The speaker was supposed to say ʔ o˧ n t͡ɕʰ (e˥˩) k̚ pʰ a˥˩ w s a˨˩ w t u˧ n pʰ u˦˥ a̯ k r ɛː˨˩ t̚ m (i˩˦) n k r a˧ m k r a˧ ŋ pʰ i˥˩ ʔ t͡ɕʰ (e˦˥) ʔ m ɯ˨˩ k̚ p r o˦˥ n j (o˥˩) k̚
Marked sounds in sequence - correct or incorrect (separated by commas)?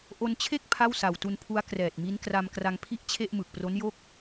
correct, incorrect, incorrect, correct